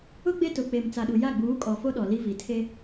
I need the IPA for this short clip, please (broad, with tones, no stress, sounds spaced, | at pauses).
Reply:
ʊ˦ ɡ͡b e˦ t ʊ˨ k͡p e˨ m t͡s a˨ ɗ u˨ j a˦˨ ɡ͡b uː˨˦ kʼ ɔ˨ f o˦ ɗ ɔ˨ l i˦ v i˨ tʰ e˦